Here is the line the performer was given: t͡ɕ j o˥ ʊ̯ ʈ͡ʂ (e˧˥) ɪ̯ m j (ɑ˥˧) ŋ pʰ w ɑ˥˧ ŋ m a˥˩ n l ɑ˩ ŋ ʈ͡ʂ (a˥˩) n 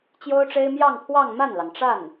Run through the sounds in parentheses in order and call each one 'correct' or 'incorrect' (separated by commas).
incorrect, correct, correct